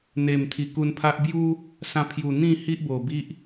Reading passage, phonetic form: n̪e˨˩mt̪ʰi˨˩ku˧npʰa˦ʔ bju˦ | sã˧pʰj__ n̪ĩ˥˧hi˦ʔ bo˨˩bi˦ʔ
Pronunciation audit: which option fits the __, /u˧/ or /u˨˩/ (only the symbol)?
u˨˩